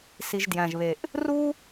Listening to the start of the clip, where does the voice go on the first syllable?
low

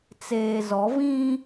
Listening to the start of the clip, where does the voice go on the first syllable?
low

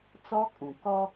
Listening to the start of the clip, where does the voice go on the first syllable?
high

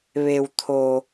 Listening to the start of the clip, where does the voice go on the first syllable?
low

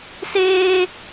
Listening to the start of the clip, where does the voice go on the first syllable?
high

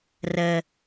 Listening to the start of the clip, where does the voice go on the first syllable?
low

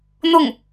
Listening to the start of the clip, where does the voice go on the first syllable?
falling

